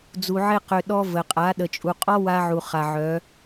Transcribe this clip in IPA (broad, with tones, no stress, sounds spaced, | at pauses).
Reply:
d͡z u˧ ʕ e˦ q ø˧ ɗ ɔ˦ v ə˨ qʼ a˨˦ ɗ ə˨ t͡ʃʼ u˨ qʼ ɔ˦ w a˦ ʕ u˨ χ a˨ ʕ œ˨˦